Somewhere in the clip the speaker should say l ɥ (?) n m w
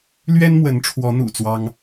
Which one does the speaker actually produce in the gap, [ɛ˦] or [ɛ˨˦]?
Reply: ɛ˦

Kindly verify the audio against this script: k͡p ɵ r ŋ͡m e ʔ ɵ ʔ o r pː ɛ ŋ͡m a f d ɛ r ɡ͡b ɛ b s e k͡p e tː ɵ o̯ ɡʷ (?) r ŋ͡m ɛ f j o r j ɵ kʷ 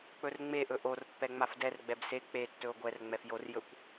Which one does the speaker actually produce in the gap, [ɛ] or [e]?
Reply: ɛ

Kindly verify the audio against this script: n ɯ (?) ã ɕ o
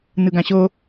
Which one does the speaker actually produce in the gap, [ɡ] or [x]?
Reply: ɡ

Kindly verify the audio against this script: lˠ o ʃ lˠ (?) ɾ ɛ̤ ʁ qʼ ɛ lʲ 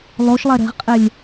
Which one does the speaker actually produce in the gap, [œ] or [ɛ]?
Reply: ɛ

